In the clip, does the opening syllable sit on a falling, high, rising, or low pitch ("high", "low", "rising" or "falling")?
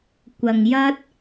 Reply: low